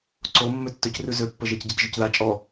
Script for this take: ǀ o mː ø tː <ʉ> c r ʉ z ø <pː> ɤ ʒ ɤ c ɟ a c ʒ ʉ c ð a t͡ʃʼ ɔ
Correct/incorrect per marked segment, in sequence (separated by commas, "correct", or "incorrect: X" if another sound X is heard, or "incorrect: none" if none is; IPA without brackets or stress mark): incorrect: ø, correct